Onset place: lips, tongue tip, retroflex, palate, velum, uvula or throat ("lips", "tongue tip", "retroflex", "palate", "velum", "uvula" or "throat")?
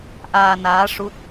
throat